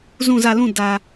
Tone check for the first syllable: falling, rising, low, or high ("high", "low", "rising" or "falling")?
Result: falling